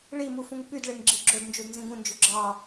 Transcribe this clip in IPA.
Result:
ɭ i m u f ũ ŋ p y d ɭ e ŋ ɡ͡ǁ i ɡ͡ǁ o d n d͡ʒ u d n z ĩ ɡ ũ n d͡ʒ y ɡ͡ǁ ɑ

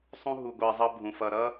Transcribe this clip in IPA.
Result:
sˤ ũ˦ ɦ u˨ ɡʷ ɜ˨ zˤ ʌ˦ bʱ ũ˨ f ʌ˨ ɾ ʌ˦

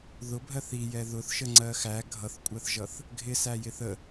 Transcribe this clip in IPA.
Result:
ð ʊ bʱ ɜ θ i j ɛ ð ʊ θ ʃ ə ŋ͡ǀ ɜ x æ ɡʱ ʌ θ kʷʼ ɜ θ ʒ ʌ θ | ɡʱ ɪ s æ j ɪ θ ə

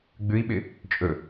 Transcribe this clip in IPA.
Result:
ɡ͡b ʉ i̯ ɓ ɪ | t͡ʃʼ ɵ

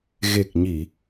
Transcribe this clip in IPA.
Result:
ɣ e˨˩ k̚ ɲ i˨˩˨

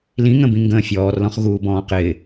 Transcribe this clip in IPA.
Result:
l ĩ ŋ ə̃ b ĩ ŋ ɡ ə̃ː fʲ ɔː r l ɔ̃ χ ɣ uː b ɔ̃ː q ɪː

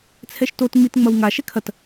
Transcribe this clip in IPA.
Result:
t͡sʰ ɛ ʃ t o t ŋ͡m i t ŋ͡m ɐ w ŋ a ʃ ɛ kʰ ɐ t

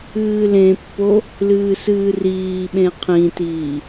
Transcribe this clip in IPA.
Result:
ɨː l ẽ pː o | l ɨː s ɨː r iː ɓ ẽ qʰ ĩ t iː

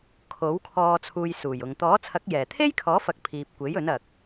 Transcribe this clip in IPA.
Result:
kʰ o˨˥ w kʰ ɔː˧ t͡sʰ uː˧ j s uː˨˩ j ʊ˨ ŋ t̪ ɔː˨˥ t͡sʰ ɐ˨˥ k̚ j ɛː˨˩ t̪ʰ e˥ j kʰ ɔː˨˥ f ɐ˨ k̚ pʰ iː˨ p̚ kʷ e˨˥ j ɵ˨˥ n ɐ˨ k̚

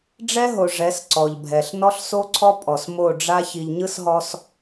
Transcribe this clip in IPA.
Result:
ɖ͡ʐ ɛ˦ ɦ o˨ ʐ ɛ˨˦ s ǀ ɔ˨ ʎ bʱ ɛ˨ ɬ n ɔ˦ ɬ s o˦ ǀʰ ɔ˦ pʼ ɔ˨ s m o˦˨ ɖ͡ʐ a˦ ç i˨ ʎ ɲ ɯ˦ s ɦ ɔ˦ s

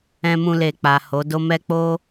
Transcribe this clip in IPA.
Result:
ɛ̃˧ m ũ˧ l e˨ k͡p a˨ h o˨˦ d o˦ m ɛ˦ k͡p o˦

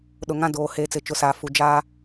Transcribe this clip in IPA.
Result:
ɗ ʊ˨ ŋ ã˦ d oː˨ h eː˨ t͡s ɪ˨ t͡ʃ ʊ˨ s aː˨ f u˨ d͡ʒ aː˦

